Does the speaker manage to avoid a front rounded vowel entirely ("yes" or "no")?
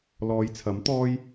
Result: yes